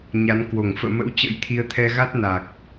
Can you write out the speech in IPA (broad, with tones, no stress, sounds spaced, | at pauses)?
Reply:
ɲ a˨˦ n k w o˧˩ ŋ f ə̰ː˧˨ m ə̰˧˥ w t͡ɕ ə̰˧˥ j t̪ʰ i˨˦ ə̯ t̪ʰ ɛ˧ ɣ a˦˥ t̚ n a˨˩ k̚